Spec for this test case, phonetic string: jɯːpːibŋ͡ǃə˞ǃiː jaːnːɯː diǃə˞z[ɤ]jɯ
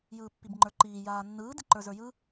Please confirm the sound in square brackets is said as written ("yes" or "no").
no